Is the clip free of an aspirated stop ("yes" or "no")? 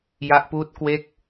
yes